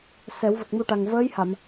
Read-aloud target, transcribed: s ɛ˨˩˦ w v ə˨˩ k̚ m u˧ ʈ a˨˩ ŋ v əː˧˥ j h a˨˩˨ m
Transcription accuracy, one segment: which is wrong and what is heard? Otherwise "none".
none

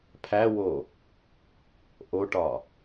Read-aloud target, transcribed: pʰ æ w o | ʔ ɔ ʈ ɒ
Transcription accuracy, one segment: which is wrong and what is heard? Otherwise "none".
ɔ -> o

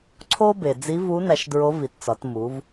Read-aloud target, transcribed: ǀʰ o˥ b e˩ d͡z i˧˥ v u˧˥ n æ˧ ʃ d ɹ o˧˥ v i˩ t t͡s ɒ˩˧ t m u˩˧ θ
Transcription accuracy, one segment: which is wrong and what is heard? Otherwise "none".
θ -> v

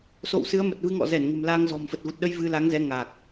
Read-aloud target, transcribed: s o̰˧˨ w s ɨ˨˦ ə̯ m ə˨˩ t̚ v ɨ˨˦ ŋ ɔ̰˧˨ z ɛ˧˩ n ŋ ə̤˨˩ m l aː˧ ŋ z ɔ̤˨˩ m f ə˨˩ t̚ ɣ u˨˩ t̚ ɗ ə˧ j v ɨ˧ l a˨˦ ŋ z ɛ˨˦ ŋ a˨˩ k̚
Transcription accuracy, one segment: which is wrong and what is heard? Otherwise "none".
none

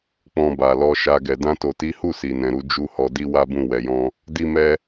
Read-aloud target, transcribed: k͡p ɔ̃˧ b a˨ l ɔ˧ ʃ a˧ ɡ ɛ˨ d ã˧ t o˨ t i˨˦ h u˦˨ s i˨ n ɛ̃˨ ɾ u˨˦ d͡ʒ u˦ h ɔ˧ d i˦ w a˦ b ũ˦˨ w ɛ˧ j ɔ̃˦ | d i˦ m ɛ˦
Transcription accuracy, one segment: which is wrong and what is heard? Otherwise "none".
none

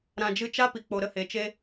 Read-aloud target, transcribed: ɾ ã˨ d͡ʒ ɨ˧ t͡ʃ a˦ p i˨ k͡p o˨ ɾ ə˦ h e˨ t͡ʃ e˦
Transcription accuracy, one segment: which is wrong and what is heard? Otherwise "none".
none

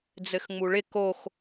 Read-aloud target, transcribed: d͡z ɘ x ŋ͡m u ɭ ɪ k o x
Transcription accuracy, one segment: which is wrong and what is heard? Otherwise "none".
none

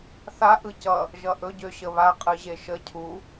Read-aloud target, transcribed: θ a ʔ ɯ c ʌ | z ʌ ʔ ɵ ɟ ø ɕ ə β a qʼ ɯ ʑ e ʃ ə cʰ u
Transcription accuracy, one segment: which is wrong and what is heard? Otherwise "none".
z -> ʒ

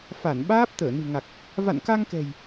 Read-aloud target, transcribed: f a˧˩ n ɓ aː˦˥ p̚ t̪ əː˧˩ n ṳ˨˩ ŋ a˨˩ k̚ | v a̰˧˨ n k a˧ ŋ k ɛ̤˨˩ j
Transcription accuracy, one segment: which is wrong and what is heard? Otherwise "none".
none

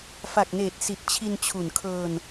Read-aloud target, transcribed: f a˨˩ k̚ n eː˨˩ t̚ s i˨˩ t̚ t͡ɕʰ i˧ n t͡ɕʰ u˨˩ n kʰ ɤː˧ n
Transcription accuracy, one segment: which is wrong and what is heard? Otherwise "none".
none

